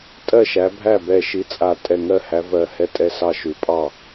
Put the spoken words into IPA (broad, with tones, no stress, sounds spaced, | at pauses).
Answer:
tʼ ɜ˥˩ ʃ æ˨˦ bʱ æ˥˩ b ɛ˧˩ ʃ i˨˦ t͡sʼ a˧˩ tʼ ɛ˧˩ ŋ ɜ˥˩ h æ˨˦ v ɜ˧˩ h ɛ˥˩ tʼ ɛ˥˩ s ɑ˥˩ ʃ ʉ˨˦ pʼ ɑ˥˩